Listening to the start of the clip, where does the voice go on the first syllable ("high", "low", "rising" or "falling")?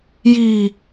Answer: low